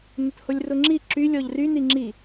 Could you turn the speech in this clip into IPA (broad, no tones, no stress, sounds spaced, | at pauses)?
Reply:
n ʊ t h o lʲ r ʊ ŋ͡ǁ i ǁ y lʲ ɔ ʎ r y n i ŋ͡ǁ i